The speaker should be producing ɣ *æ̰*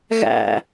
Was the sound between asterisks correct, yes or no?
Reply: yes